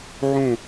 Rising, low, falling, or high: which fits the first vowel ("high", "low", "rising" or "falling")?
low